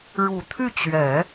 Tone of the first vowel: low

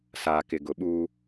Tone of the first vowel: low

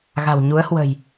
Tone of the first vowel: low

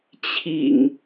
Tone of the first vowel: low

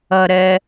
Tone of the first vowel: low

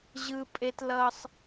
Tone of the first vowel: high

